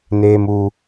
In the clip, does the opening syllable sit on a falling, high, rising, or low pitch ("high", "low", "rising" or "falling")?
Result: high